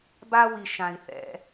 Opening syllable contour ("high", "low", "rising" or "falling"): high